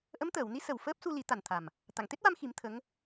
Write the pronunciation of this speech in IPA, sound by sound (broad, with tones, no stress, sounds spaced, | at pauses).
ʔ ə˧˥ m t̪ əː˨˩˨ w n i˧˥ s ə˨˩ w f əː˦˥ p̚ s u˧ l i˨˩˦ t̪ a˨˩ n t̪ʰ a˨˩ m | t̪ a˨˩˨ ŋ t̪ e˦˥ t̚ w a˧ m x i˨˩˦ m t̪ʰ ə˧˥ ŋ